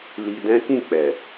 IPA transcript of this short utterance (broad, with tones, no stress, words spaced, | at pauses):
li˧ dɛ̃˦kĩ˦˨ k͡pɛ˨